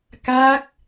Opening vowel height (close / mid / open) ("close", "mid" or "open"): open